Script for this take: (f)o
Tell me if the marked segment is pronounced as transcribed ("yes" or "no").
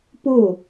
no